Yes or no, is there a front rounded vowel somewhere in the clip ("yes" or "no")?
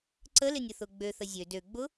yes